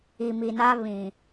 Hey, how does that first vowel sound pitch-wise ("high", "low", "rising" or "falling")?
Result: low